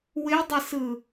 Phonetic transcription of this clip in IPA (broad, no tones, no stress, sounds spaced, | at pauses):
w ɪ dˤ ɪ s ɯ